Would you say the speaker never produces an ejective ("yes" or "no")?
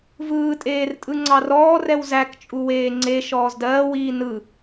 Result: no